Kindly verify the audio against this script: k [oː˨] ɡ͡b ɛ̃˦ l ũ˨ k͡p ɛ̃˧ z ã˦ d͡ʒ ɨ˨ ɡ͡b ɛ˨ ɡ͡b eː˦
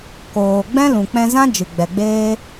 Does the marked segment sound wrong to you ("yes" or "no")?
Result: no